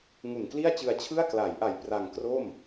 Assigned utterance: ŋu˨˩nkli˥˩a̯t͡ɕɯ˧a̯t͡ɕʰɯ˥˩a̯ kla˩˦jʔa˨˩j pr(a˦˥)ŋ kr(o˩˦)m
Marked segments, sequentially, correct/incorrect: incorrect, incorrect

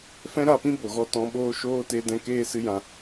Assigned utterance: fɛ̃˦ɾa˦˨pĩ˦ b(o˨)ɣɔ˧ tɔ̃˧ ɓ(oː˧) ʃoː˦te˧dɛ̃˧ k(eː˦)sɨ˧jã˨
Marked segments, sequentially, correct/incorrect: correct, incorrect, correct

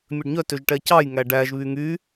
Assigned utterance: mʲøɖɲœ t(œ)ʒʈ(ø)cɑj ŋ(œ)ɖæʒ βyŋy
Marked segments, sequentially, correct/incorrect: incorrect, incorrect, incorrect

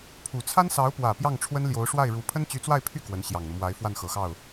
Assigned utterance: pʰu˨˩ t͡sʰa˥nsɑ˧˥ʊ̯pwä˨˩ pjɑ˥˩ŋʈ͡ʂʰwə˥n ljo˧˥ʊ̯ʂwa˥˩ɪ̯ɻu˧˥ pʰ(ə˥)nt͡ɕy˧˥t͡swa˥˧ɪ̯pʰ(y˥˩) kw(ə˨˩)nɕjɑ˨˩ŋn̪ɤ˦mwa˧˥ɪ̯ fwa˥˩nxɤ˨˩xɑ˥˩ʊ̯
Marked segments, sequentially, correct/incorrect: correct, correct, incorrect

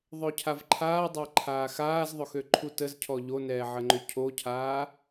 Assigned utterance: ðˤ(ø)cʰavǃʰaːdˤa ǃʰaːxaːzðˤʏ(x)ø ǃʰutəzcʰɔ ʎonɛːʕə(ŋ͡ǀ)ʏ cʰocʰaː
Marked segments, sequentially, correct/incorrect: correct, correct, incorrect

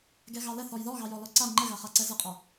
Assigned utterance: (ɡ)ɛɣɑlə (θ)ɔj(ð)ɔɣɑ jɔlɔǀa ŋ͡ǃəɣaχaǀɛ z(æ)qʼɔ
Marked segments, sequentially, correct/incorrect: correct, correct, correct, incorrect

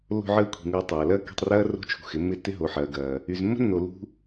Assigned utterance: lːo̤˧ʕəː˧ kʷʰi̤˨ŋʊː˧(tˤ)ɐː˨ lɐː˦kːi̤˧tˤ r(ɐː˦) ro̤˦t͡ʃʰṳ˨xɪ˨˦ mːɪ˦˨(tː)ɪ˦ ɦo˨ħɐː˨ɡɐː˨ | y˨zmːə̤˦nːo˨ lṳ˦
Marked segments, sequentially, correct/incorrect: correct, correct, correct

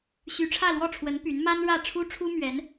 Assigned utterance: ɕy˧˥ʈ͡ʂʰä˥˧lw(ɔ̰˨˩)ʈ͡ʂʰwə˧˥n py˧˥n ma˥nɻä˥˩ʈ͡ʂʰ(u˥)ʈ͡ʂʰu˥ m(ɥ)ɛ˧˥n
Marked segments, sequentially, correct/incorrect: incorrect, correct, correct

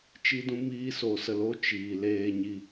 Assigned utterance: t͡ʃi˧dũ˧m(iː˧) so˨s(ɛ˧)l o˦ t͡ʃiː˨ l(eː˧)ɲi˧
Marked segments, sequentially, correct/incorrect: correct, incorrect, correct

